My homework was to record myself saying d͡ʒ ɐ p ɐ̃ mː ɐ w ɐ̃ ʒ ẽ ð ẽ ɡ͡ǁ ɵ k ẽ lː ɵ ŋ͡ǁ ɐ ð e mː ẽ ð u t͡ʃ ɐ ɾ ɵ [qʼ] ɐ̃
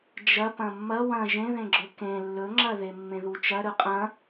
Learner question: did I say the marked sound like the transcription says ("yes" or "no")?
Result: yes